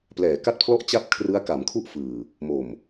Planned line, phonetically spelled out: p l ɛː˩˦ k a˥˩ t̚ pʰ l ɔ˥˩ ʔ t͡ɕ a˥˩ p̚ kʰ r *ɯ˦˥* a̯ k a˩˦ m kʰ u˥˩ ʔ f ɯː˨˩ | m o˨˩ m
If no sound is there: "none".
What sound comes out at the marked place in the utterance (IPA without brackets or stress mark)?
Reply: ɯ˦˥